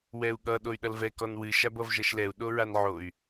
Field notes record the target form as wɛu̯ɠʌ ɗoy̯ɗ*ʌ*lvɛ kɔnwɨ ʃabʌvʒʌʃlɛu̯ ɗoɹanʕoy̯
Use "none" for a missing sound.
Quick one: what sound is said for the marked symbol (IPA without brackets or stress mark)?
ʌ